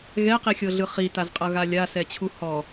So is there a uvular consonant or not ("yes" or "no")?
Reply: yes